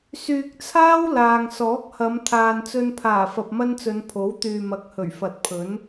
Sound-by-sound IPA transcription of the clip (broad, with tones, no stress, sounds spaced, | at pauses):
s yː˨ k̚ t͡sʰ aː˥ w l aː˨ ŋ s ɔː˨˥ k̚ h ɐ˨˧ m t̪ʰ aː˨ n t͡s ɵ˧ n pʰ aː˨˩ f ɐ˨ p̚ m ɐ˥ n t͡s ɵ˨˧ n pʰ o˨˥ w t̪ yː˨ m ɐ˨˥ k̚ h ɵ˨˩ ɥ f ɐ˨˥ t̚ pʰ ɵ˨˥ n